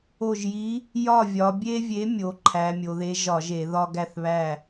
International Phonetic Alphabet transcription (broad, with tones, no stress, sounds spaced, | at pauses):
o˧˩ ʒ j i˨˥ | j ɒ˥˩ vʲ ɒ˩˧ bʲ e˦ vʲ e˨˥ mʲ o˩˧ ǃʰ æ˩˧ mʲ o˩˧ ð e˨˥ ʒ ɒ˧˩˧ ʒ e˧˩˧ ð ɒ˦ ɡ æ˥˩ θ β æ˥˩